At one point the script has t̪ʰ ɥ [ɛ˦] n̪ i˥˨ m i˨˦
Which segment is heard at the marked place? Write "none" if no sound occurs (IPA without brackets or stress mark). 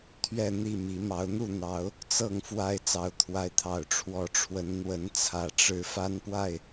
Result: ɛ˥˨